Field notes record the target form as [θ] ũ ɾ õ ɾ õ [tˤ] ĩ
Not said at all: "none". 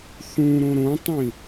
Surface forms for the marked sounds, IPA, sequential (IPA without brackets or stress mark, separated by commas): θ, tˤ